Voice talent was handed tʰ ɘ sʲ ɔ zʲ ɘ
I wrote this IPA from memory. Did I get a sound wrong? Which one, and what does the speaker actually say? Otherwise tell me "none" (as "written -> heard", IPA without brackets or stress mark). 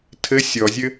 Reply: none